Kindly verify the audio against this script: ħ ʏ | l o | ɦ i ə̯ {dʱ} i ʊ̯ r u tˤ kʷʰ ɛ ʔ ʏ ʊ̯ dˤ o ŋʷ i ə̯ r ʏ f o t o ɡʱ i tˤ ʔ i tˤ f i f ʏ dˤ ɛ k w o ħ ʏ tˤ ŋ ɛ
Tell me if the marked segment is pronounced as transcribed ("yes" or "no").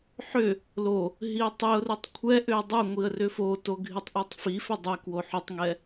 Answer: no